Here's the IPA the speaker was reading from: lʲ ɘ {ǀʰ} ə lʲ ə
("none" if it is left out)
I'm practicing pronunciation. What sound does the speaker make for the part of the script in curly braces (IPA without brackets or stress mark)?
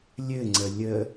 ŋ͡ǀ